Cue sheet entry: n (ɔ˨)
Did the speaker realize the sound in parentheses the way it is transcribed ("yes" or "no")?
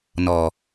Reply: yes